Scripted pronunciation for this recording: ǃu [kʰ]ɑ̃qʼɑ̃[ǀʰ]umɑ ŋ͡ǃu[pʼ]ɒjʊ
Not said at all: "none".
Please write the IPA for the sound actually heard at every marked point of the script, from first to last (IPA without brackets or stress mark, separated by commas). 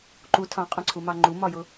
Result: tʰ, ǀʰ, m